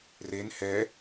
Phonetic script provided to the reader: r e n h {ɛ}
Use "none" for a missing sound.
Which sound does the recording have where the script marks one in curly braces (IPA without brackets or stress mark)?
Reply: ɛ